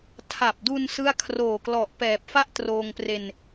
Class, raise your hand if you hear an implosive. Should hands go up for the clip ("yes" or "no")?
no